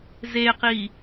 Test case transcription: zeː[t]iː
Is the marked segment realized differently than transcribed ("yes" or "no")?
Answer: yes